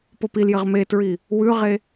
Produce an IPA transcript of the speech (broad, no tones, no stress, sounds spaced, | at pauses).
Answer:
p o p i l j ɘ ʁ m e t ɹ i | w ʉ ʁ e